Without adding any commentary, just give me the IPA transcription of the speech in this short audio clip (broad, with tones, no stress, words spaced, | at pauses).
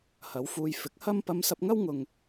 hɐ˨˧wfuː˧j fɪ˨˥k̚hɐ˥m pɐ˧msɐ˧p̚ŋɐ˥wŋʊ˨ŋ